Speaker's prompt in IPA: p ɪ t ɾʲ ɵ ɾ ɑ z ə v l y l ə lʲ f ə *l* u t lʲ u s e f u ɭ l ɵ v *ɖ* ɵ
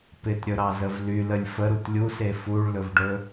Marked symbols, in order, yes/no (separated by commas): no, yes